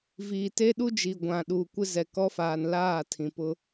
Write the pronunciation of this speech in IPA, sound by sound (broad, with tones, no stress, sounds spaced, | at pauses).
v iː˨ t e˦ ɗ u˦ d͡ʒ i˨ ɡʷ ã˨ ɗ uː˨ kʷ ɪ˦ z ɛ˨ k ɔ˦ f aː˨ n l aː˦˨ tʰ ĩ˨ p ʊ˦